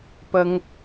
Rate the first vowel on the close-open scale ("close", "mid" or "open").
open